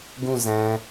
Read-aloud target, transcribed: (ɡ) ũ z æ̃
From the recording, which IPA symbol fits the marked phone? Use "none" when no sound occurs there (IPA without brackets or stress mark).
ɡ